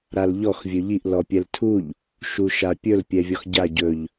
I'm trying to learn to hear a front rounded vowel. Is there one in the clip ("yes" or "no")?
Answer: no